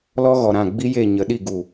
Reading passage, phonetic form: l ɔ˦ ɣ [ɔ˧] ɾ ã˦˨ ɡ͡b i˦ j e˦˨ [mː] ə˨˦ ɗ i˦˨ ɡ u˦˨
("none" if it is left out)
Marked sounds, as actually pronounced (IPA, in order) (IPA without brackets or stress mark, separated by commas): ɔ˨, ɲ